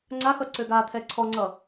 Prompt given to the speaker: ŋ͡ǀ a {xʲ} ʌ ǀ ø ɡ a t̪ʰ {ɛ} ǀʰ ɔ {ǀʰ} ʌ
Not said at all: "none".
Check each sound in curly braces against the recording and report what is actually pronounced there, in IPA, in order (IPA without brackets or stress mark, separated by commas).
x, ɛ, ŋ͡ǀ